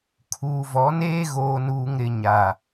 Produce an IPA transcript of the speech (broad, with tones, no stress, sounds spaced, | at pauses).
kʰ uː˨ v ɔ˨˦ n eː˦ ɣ oː˨ n uː˨ ŋ ɾ ɪ˨ ɲ a˨